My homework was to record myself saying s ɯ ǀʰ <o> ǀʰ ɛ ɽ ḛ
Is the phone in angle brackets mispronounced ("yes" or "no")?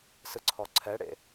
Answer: yes